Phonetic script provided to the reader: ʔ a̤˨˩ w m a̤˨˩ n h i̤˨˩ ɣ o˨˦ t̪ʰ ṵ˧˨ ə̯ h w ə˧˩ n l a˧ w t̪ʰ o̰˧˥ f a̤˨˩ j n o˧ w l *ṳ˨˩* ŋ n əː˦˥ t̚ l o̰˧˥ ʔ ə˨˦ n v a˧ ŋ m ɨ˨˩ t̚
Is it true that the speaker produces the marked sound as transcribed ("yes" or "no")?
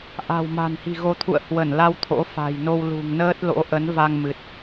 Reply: yes